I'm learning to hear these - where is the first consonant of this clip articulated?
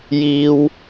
palate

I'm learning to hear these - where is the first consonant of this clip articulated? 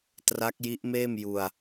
tongue tip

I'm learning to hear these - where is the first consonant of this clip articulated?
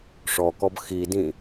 retroflex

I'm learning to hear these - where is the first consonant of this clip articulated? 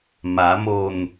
lips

